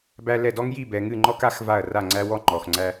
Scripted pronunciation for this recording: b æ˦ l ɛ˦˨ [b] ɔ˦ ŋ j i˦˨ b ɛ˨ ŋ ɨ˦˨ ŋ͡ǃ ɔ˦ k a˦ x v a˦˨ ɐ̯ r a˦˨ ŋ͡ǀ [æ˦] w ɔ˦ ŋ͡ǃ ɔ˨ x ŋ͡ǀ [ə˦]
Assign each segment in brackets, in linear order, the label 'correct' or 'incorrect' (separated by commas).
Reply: incorrect, correct, incorrect